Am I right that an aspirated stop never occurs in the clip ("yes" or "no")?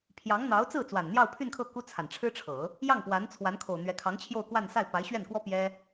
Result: no